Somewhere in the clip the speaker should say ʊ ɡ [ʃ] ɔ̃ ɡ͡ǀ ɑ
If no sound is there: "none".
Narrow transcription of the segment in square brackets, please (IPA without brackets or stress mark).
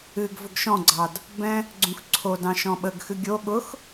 ʃ